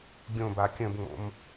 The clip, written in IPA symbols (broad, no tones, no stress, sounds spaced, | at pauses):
ɡʲ õ b a kʲ ə̃ b ŋ͡m o̰ m